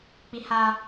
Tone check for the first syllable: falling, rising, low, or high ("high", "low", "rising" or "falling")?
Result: low